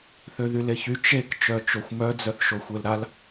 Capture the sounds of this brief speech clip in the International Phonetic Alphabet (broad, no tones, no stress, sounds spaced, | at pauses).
θ ø ð y l e ç y t͡ʃ e k t͡ʃ œ t͡ʃ o xʷ m œ d͡z œ θ ʃ o xʷ e l ɾ a l